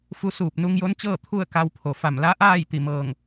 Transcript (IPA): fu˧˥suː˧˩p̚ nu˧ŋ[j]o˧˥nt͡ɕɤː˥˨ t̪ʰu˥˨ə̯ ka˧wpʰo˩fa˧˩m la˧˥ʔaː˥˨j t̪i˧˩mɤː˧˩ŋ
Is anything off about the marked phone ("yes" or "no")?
no